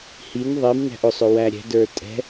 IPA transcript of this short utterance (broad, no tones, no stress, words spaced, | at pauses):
hin ðˤimnæ̤ʔ ʊsˤʊ wæɾʲɛ̤də˞ tʼɛ̤